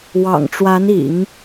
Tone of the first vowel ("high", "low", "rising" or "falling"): low